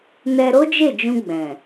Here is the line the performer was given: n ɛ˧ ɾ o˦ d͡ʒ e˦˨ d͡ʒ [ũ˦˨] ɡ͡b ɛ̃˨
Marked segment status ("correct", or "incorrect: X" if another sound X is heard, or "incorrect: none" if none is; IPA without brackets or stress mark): incorrect: ũ˧